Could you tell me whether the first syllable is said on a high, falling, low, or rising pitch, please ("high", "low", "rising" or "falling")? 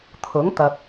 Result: rising